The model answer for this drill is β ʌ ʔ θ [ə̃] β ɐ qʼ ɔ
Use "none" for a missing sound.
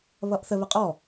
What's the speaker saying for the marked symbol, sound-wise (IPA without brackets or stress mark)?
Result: ə